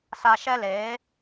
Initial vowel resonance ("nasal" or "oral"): oral